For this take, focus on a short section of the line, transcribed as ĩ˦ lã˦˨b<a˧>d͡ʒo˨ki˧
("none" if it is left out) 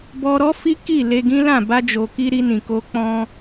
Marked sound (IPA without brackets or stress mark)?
a˧